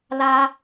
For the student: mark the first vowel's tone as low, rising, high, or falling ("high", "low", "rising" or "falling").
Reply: high